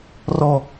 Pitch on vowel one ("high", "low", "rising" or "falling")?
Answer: low